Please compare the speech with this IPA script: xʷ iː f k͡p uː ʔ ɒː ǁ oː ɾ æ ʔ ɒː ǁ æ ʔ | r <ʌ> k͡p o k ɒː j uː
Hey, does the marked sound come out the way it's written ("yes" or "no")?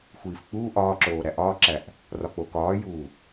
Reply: no